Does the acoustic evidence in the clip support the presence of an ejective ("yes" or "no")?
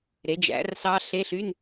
no